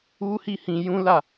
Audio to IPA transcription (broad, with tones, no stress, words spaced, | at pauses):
u˦hi˦˨hĩ˧ jũ˦la˦˨